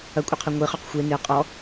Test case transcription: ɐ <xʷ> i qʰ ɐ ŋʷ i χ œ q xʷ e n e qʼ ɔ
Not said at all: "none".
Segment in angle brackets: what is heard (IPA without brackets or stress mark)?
kʷʼ